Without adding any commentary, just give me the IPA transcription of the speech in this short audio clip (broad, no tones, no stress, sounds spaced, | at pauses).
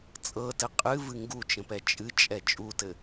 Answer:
t͡sʼ ɤ t ɘ qʼ ɨ v ɨ ŋ ɡ u t͡ʃ ə̃ p ɛ t͡ʃʼ ɨ t͡ʃʼ ɛ t͡ʃʼ u t ɘ